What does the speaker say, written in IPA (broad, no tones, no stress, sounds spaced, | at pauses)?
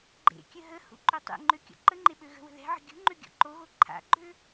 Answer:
ɡ͡ǃ ḛ kʲ ə ɦ ə h ṵ ǃ ø tˤ ḛ ŋ͡ǃ ø kʲ ɔ̰ ǃ ə ŋ͡ǃ e ɓ ø ɣ ə̤ w ə̤ ð ɛ̤ ʕ ə̤ ɡʲ ṳ ŋ͡ǃ ø ɡʲ ɔ̰ ǃ o ɣ o ǃʰ a̰ ɡ͡ǃ ø